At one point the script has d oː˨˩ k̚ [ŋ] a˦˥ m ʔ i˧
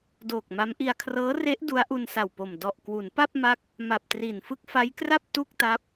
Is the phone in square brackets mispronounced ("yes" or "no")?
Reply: yes